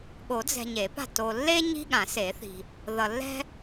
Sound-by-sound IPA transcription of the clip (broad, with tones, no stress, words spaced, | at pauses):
ɠo˨˩˦d͡zɛ̤˨ ɲe˨˩˦pa̤˥˩ to˨lːe˥ ɲi̤˥ɠã˨˩˦se˨˩˦θi̤˨ | ðʌ˨lːɛ̤˥